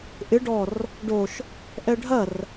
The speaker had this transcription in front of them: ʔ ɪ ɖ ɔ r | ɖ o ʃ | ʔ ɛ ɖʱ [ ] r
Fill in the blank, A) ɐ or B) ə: A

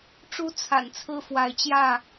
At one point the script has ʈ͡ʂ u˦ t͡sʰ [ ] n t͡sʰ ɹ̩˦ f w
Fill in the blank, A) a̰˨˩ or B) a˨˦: A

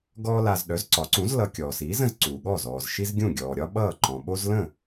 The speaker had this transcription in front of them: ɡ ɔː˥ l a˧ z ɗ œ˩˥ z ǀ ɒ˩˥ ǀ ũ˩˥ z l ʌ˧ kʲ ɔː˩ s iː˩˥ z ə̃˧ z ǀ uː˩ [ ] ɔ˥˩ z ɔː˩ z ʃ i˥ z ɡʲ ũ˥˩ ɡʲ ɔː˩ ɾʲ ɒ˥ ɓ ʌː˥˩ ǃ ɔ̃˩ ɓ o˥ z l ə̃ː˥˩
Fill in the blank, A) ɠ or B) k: A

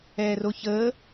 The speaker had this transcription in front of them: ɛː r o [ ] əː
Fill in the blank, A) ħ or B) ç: B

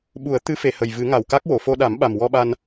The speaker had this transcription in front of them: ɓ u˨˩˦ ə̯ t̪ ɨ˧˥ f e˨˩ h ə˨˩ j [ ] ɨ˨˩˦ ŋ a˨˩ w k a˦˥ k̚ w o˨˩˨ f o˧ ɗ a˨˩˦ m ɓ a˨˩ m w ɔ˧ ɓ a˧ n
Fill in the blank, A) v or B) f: A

